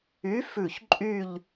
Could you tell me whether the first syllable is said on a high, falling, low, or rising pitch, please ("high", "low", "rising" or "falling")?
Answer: rising